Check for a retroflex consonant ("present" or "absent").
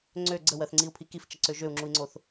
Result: absent